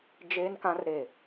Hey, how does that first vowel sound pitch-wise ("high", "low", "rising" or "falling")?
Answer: high